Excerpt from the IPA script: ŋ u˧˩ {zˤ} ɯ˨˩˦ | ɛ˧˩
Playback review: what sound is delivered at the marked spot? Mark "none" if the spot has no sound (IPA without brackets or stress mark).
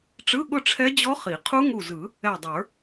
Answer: z